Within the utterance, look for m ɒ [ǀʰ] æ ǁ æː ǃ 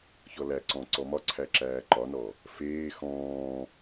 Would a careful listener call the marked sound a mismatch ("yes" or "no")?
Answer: no